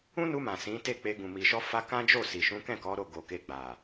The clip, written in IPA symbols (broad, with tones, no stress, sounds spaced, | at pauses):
ũ˦ n u˧ m ã˨ s ĩ˨˦ t e˦˨ k͡p e˧ ɡ ũ˨ m i˨ ʃ ɔ˧ f a˧ k ã˦ d͡ʒ o˦˨ s i˨ ʃ ũ˨˦ k ɛ̃˦˨ k ɔ˨˦ ɾ o˦˨ ɡ o˨ k e˧ ɡ͡b a˨